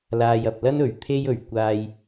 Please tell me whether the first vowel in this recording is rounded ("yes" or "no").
no